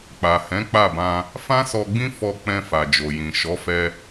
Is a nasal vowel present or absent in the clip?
present